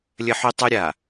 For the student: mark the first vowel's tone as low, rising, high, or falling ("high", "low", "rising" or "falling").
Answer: high